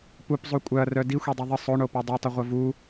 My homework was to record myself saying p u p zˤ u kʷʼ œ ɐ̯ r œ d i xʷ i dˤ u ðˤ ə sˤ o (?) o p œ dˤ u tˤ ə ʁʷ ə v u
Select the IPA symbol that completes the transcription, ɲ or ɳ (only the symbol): ɳ